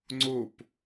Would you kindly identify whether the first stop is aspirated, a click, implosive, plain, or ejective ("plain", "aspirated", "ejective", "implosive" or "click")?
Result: click